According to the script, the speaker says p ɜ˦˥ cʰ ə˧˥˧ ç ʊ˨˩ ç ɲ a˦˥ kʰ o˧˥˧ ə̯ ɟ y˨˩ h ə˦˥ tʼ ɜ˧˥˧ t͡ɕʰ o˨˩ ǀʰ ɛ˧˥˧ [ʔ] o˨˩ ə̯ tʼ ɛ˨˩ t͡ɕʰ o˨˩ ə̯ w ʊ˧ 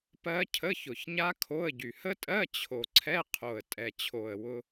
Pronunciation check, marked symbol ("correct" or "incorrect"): incorrect